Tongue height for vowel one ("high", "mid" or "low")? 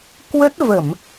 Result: mid